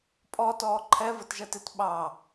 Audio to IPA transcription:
pʼ ɔ t ɔː ǃʰ ɛ v ə t ʒ ɜ t ɪ t ɓ ɑ

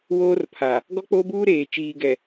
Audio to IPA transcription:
w oː˦ r pʰ a˨ | ɡ ɔ˦ k͡p oː˦ b uː˦ ɾ eː˨ t͡ʃ iː˨ ɡ ɛ˨

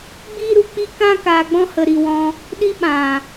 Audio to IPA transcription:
ɡ͡b iː˦ ɾ u˧ k͡p i˦ k ã˦ k aː˧ ɡ͡b ɔ̃˦ h ə˧ ɾ i˧ w ɔ̃˧ | ɗ i˦ ɓ ã˨

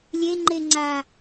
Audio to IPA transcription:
lʲ e ŋ͡ǃ e ŋ͡ǀ a

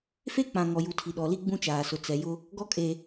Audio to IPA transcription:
f e˦ k͡p ã˨ ŋ ɔ˨ j u˨ tʰ i˨ ɗ ɔ˨ l i˦ ɡ͡b ũ˦ t͡ʃ aː˨ s ʊ˨ t͡s ɛ˨ j ʊ˦ | ɡ ɔ˦ kʼ e˨

